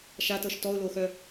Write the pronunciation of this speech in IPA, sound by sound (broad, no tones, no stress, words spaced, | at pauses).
ʃatɤʃ tɔʊ̯loxœ